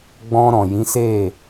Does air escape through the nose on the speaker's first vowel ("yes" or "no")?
yes